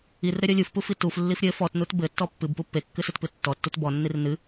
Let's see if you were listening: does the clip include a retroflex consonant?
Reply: no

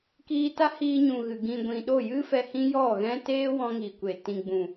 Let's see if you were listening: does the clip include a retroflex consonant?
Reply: no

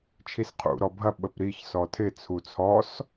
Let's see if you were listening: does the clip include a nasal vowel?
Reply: no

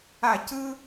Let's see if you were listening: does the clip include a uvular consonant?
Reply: no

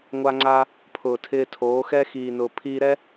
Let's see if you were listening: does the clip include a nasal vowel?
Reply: no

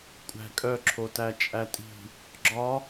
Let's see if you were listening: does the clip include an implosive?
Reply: no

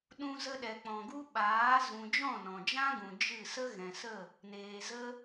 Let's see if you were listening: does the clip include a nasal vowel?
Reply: yes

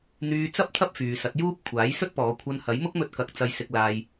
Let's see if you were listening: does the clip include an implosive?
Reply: no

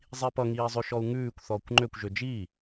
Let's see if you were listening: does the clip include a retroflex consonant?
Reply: no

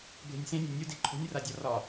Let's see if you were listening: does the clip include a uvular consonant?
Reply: no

